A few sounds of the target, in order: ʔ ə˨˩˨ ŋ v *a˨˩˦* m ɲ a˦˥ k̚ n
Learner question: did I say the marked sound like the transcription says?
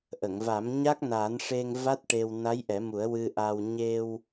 yes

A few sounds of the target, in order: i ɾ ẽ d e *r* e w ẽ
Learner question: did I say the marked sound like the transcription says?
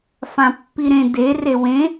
yes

